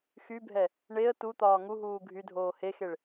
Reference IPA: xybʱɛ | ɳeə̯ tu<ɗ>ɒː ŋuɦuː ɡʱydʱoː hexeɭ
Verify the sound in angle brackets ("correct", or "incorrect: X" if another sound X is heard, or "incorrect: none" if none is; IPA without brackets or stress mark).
incorrect: t̪